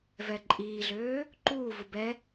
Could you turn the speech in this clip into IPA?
vɛǃʼiːɮøː | ǃuːvu bɛ

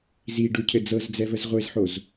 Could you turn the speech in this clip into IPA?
zi ɖucʰɘ d͡zɤzd͡zɛvəz ʁʷezħoz

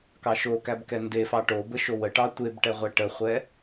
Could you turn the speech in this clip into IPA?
kɑʃokæb kɛndefɑ ʈo bəʃowəʈɑ tʷebʈɛ ʁʷɛʈəχʷɛ

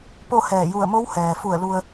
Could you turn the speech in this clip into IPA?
po˥˨hɛː˧˩ ju˧˩ə̯mo˧˥w hɛː˩fu˧˩ə̯ lu˧ə̯

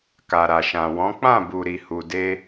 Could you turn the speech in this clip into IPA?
ka˨ɾa˨ʃã˨wɔ̃˨˦ k͡pã˦˨ bu˨ɾi˨hu˨de˧

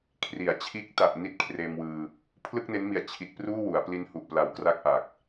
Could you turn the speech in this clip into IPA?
kʰri˩˦a̯t͡ɕʰiː˦˥k̚ ta˨˩ʔ ni˦˥t̚kʰreː˧mwɯː˧ | pʰlɯ˥˩k̚ne˦˥nmi˨˩a̯ t͡ɕʰi˨˩t̚ pruː˥˩wu˩˦a̯pli˦˥n hu˨˩ʔpla˨˩wkra˦˥k̚ ʔa˨˩k̚

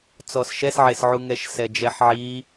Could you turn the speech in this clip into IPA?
t͡sɔsʃɛsʕesʕu ŋɛʃsɛd͡ʒɛħʕi

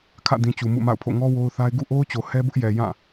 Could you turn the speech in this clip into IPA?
kʰä̰˦˨dĩ˨ t͡ɕu˨mṵ˦˨ma̰˦˨ʊ̯pʰo̰˦˨ ŋɔ˦ wo˦ʊ̯θa˦ɪ̯ ɡṵ˦˨ʔo˦ʊ̯t͡ɕo˨ hɛ˦bʊ˦ʔjɛ˨ jã˦˨

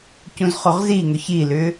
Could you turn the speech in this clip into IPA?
cũzχoʁziŋʏ çilʏ

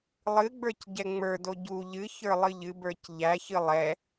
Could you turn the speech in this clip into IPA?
lˠɨɡ͡bə˞cɟɛ ŋ͡mə˞do ɟu ʎɨ çə˞lˠɨʎɨbə˞c ʎæçɨ lˠɛ

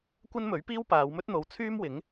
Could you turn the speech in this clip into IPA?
kʷɐ˥nmɵ˨˥ɥpiː˥w paː˨˧wmɵ˥t̚n̪o˨˧w t͡sʰyː˥mwɪ˨˥ŋ

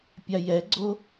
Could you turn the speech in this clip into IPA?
pʲajɛɡ͡ǀo

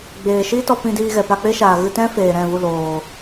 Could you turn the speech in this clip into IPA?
ɡ͡beː˨ʃiː˦tɔ˧ pĩ˧diː˧ɣɛ˨ pa˧k͡pe˦ʃaː˨ ɣɨ˧tɛ̃˦ feː˨ɾɛ̃˦˨ vu˦˨loː˨

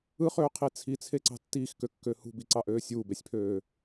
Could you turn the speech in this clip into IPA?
ɯχøːqʰi t͡sʰit͡sʰeǀɑ̤ tːiːxkøkːø hṳbiǀɑʔøː sʲuːbesʲpʰøː

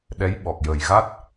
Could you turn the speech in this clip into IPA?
ɗɛ˧˥jɓɔ˨˩k̚jəː˨˩jɣa˦˥t̚

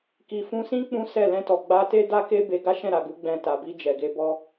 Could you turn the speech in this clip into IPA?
ki˨fũ˧sĩ˦ k͡pũ˦sɛ˦˨ lɛ̃˧tɔ˨ ɡ͡ba˧te˦da˦ke˦ be˧ ɡa˦ʃɛ̃˦˨ɾa˨ɡu˨˦ ɡ͡bɛ̃˧ ta˨bi˧ d͡ʒɛ˨ɡe˧bɔ˦

